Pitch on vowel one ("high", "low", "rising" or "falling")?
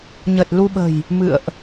low